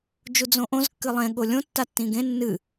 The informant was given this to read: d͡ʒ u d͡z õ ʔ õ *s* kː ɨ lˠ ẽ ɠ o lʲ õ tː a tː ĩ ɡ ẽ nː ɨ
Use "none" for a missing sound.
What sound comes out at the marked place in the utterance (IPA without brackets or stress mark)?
z